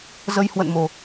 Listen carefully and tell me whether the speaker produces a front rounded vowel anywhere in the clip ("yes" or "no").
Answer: no